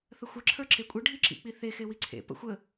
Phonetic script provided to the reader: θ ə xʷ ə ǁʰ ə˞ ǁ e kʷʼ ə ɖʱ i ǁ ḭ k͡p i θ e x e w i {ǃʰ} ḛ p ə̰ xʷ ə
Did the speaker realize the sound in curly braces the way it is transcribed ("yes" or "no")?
no